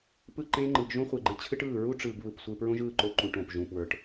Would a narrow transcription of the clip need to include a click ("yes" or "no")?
yes